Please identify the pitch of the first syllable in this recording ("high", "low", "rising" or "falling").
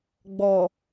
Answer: low